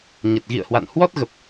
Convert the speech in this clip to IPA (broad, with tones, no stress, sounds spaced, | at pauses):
ɲ ə˨˩ t̚ ɣ ḭ˧˨ ə̯ h w a̰˧˨ n h w ɔ˦˥ t̚ ɣ ə˨˩ p̚